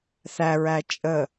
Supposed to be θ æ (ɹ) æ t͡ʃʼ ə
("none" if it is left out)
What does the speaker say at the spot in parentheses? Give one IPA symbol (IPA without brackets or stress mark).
ɹ